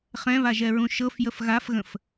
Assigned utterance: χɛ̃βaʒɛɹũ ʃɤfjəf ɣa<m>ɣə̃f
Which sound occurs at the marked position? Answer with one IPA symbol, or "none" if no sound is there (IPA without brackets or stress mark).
f